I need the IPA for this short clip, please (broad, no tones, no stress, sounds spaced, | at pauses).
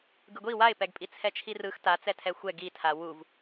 ɡ ɯ ɡʷ i w a ɪ̯ p ɛ ɡ pʼ i t͡sʰ ɛ t͡ʃʰ i r ɯ x t a t͡s ɛ tʰ ɛ xʷ ɛ ɡ i tʰ a w u v